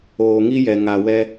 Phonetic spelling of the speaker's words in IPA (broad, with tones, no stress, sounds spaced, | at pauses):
oː˨ ŋ i˦ j ɛ˨ ŋ a˨ w ɛ˦